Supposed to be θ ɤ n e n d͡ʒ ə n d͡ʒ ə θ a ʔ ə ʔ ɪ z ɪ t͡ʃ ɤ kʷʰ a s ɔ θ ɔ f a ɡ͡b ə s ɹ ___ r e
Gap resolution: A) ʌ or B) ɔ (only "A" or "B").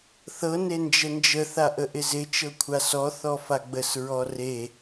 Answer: B